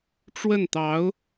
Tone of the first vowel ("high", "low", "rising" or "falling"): falling